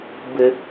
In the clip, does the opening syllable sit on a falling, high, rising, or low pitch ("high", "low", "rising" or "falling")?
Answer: high